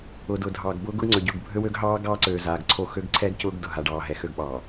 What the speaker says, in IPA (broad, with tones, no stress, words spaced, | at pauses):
ʊː˨dʊ˨dʱɑː˨ɡbʊː˦ ɡʊ˦ɡŋ͡ǀø˨ɟʊː˦˨ɡ bʱø˦wø˦ɡɦɑː˦ ɡɑː˦ǀøː˨ zaː˨ɡǀʰo˦˨ xø˦ɡǀʰɛː˦ɡ cʊː˦ɡ dʊ˨ɦa˨ ɖɑː˨ɦɛ˨xø˦˨ɡ ɓɑː˨